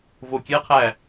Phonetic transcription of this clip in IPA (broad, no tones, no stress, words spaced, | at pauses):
vokʲɛqʰæ